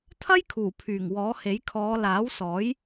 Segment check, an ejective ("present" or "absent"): absent